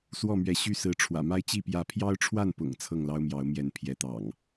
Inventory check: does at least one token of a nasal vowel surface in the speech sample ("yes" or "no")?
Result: no